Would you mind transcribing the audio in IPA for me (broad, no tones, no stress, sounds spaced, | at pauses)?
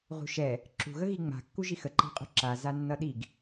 ʁ ṳ ʃ ɛ | ǁ ṳ ɣ ə ɣ i ŋ͡m a̤ kː u ʒ i x ə ǃ a̤ qʼ ṳ ǁ a z a nː ʌ ɗ i ɡ